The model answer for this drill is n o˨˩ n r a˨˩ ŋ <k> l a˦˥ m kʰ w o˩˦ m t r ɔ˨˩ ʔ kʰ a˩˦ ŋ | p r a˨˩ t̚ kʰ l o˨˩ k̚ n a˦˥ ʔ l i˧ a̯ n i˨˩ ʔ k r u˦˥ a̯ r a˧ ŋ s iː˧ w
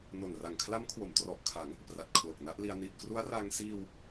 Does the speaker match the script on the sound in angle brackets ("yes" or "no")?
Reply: no